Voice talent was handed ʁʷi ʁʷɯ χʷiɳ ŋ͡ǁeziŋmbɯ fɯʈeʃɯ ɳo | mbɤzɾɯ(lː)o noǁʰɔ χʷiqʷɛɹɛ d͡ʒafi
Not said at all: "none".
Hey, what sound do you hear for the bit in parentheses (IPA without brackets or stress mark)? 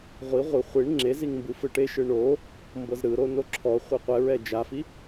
ɾ